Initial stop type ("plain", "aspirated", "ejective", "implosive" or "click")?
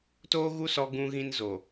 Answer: plain